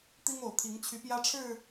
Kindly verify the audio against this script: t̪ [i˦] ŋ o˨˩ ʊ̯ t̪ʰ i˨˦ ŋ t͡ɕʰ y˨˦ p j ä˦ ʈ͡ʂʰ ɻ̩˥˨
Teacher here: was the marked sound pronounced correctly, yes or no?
yes